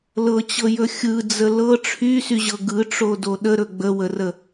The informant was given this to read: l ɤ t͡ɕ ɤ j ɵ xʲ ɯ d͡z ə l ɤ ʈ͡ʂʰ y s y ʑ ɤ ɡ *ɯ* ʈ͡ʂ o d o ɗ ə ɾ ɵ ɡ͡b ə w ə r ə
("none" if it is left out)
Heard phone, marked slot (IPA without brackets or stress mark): ɯ